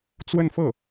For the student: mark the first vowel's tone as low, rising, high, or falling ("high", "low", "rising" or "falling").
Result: falling